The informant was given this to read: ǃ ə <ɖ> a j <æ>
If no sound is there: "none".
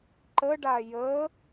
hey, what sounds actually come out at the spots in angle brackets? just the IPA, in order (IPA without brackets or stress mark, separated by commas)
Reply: ɖ, ə